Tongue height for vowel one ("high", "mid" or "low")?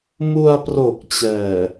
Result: high